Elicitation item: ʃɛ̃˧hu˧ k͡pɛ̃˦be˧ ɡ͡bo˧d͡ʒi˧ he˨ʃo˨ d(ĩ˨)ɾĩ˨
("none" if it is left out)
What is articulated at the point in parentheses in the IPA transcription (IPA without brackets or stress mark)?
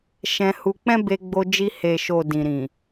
ĩ˨